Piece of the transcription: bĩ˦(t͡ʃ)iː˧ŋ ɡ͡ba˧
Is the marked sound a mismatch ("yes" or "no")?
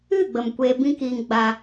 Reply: yes